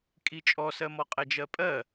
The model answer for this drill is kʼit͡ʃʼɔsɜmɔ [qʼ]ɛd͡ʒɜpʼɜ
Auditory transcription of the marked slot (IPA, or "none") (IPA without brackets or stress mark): qʼ